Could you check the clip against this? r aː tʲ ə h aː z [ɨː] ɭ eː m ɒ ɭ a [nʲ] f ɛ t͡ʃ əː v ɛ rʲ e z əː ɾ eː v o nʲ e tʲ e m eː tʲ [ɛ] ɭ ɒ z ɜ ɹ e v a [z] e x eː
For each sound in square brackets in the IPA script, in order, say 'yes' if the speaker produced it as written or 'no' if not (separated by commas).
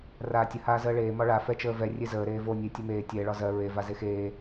no, no, yes, yes